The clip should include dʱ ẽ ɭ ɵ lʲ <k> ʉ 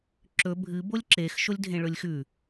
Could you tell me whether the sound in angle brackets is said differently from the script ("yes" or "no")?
yes